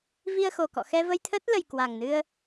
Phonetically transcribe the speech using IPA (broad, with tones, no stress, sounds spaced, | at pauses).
v i˧ ə̯ x o˨˩ k ɔ̰˧˨ x ɛ˧ v ə˧ j t̪ʰ əː˦˥ t̚ l ə˨˩ j k w a˨˩ ŋ n ɨ˧ ə̯